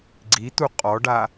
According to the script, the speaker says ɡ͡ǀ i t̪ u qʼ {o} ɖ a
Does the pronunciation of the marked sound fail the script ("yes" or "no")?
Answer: yes